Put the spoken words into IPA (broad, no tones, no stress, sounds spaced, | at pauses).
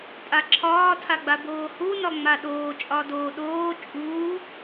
tʼ a ǁʰ ɒː tʰ a ɡ͡b a b oː h u n ɒ ŋ͡m a ɗ oː t͡ʃʼ ɒ d oː ɗ oː t͡ʃʼ uː